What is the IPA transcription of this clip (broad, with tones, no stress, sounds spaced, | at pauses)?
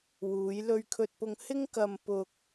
w uː˨˧ j l ɵ˧ ɥ kʰ ɵ˧ t̚ p ʊ˧ ŋ h ɪ˥ ŋ k ɐ˧ m p ʊ˧ k̚